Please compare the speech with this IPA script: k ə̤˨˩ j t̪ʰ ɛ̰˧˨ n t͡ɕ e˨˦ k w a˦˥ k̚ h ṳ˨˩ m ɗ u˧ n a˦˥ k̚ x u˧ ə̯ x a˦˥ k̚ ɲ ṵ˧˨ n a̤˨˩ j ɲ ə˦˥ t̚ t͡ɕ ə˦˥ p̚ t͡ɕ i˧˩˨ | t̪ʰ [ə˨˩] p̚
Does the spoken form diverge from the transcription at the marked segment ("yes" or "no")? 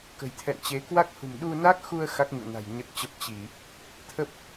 yes